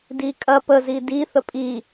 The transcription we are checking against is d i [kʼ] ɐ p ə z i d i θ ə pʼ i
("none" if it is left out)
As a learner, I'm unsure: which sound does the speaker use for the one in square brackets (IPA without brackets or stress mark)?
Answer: kʼ